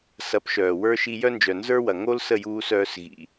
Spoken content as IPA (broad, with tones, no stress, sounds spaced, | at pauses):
s ɐ˩˥ p ʃ œː˩ w ə˞˧ ʃ i˧ j œ˥ n d͡ʒ œ˩ n z ə˞˥ w ɐ˩ ŋ o˥ l s ə˥˩ j uː˧ s œː˧ s ɣ ḭ˩